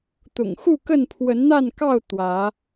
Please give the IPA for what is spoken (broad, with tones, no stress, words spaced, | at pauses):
t̪ʊ̰˨˩ŋxu˥˨kə˥˨n pʰwə˨˦nn̪a˥˨nkɑ˥˨ʊ̯ t̪wä˨˦